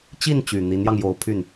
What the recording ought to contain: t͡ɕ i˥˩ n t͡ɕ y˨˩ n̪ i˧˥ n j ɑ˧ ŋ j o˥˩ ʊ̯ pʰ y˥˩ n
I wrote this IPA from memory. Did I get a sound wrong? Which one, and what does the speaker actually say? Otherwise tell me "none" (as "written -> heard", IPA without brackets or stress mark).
o˥˩ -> o˧˥